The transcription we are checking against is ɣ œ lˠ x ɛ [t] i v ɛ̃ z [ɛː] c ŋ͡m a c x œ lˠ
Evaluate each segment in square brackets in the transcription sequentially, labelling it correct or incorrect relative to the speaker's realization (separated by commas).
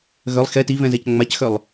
correct, incorrect